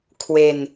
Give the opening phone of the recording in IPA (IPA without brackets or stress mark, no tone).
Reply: kʰ